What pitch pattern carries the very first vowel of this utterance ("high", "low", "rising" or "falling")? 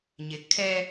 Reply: low